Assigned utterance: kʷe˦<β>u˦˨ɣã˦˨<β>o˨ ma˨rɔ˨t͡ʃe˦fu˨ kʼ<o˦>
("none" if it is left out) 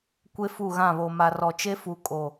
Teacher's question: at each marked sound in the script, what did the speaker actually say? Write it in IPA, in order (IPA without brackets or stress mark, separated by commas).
f, β, o˨